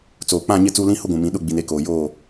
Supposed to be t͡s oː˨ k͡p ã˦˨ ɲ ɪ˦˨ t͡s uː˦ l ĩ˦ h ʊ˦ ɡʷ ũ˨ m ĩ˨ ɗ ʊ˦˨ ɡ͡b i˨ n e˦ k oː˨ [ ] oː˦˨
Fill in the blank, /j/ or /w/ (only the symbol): j